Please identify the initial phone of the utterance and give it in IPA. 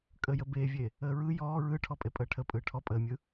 kʼ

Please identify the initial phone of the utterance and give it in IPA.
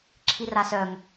ǁʰ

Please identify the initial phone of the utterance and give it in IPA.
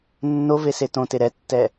nː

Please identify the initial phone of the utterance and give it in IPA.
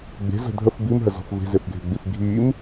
ɡ͡b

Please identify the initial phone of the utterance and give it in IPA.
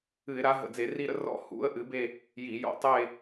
ɨ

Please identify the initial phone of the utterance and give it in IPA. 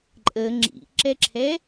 ǃʼ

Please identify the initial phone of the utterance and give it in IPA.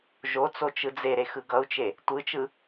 ʒ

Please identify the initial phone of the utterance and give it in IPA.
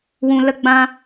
w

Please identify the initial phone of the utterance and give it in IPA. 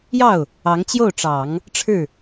j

